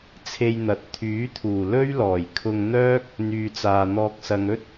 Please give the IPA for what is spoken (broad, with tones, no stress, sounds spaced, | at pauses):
t͡sʰ e˧ j n̪ ɐ˨˥ t̚ t̪ʰ yː˨˥ t̪ʰ uː˨˩ l ɵ˥ ɥ l ɔː˨˩ j kʰ ʊ˧ ŋ n̪ œː˥ k̚ | n̪ yː˨ t͡s aː˨ n̪ ɔː˧ k̚ s ɐ˧ ŋ ɵ˥ t̚